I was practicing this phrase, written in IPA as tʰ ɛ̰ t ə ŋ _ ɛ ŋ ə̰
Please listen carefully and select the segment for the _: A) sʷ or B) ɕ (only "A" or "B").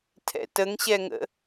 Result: B